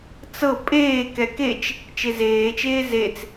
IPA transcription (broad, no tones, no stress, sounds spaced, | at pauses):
t͡s ɤ pʼ eː k ɛ k e t͡ʃ | t͡ʃ e z eː t͡ʃ eː z e t͡s